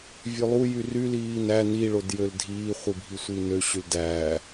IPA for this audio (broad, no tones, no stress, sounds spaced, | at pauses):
vʲ ø lˠ u j y r y l iː n æ n i ɭ o d j ø l dʱ iː χʷ i bʱ i sʷ i n ø ɕ y l d æː